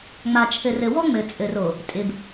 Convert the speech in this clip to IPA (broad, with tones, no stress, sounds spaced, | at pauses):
ŋ͡m a˨ t͡ʃʰ ɘ˨ r ɘ˨ w ɔ˦ ŋ͡m ɘ˨ t͡sʼ ɘ˨ r o˨ | tʼ ɪ˨ b